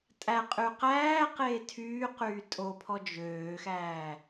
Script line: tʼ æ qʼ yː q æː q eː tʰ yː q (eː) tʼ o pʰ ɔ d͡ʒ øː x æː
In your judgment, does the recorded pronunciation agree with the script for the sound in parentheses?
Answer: no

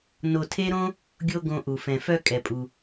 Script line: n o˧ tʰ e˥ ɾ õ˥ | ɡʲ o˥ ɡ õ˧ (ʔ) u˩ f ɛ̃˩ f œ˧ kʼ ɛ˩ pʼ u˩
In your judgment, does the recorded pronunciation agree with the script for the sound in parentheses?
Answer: yes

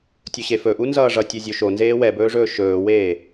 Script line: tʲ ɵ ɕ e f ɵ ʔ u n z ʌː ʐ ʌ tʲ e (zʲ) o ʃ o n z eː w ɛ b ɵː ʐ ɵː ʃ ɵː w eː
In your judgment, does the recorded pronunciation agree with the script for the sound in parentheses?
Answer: yes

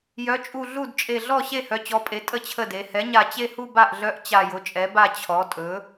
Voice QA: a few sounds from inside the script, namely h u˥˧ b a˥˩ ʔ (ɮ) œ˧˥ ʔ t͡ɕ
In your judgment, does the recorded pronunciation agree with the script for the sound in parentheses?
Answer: yes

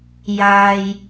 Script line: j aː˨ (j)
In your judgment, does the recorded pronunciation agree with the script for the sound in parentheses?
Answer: yes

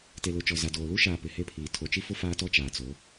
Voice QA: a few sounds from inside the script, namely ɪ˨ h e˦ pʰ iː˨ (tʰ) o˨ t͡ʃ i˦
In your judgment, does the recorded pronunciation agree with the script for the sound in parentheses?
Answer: yes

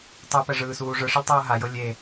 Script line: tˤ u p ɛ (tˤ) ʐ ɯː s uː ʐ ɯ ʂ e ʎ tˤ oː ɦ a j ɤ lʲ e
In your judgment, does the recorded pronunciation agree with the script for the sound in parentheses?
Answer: no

